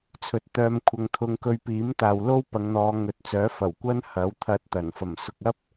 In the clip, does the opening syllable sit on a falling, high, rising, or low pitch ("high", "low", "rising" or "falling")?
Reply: rising